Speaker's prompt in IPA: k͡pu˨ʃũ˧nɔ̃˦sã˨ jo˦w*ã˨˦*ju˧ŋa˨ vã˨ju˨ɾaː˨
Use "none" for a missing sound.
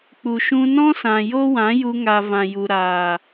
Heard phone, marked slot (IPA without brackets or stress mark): ã˨˦